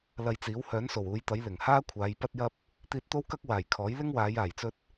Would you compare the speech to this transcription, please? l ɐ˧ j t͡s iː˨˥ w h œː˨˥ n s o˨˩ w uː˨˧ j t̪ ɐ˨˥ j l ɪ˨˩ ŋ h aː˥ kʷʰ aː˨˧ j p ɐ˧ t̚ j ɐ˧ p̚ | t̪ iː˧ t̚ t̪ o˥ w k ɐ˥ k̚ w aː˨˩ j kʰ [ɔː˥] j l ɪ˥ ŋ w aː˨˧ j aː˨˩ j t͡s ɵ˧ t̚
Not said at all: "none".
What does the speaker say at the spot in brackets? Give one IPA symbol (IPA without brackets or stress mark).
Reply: ɔː˨˥